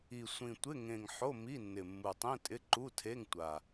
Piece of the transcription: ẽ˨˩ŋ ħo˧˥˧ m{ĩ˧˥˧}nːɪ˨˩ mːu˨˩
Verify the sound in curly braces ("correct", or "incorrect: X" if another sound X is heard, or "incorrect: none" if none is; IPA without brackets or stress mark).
incorrect: i˧˥˧